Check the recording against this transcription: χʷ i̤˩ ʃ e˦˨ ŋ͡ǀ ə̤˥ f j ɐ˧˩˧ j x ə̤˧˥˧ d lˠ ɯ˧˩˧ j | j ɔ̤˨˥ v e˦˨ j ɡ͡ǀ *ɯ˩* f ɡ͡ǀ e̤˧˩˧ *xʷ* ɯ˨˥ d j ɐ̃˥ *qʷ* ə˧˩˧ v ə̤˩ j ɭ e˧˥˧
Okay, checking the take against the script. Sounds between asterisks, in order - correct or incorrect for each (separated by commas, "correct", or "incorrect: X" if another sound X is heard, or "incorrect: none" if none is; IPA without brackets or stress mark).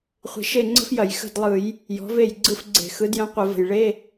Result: incorrect: ɯ˦˨, incorrect: x, correct